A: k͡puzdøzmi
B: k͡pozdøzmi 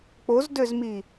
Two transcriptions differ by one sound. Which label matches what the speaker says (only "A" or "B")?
B